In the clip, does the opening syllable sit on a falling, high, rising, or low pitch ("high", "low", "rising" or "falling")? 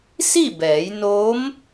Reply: falling